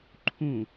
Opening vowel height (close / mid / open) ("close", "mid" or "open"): close